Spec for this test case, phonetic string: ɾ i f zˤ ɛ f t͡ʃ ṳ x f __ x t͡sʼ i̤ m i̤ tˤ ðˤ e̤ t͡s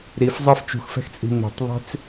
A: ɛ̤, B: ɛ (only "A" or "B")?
A